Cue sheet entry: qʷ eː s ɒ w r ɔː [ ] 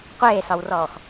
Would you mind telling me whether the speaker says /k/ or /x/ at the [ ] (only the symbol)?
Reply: x